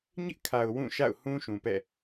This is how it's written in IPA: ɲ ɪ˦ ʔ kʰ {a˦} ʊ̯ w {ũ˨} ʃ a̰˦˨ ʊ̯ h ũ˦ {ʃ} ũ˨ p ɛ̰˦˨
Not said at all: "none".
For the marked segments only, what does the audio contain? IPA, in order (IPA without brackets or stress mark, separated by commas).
a˨, ũ˦˨, ʃ